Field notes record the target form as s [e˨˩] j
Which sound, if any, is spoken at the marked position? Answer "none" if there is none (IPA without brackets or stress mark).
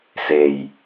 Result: e˨˩